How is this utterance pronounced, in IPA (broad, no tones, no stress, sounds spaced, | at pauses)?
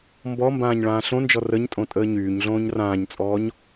m b ɔ m b ãː ɲ ɭ ãː ɬ õ n d͡ʒ ɔ r ə ɲ tʼ õ tʼ əː ɲ yː ɲ ɮ õː ɲ r ãː ɲ t͡sʼ ɔː ɲ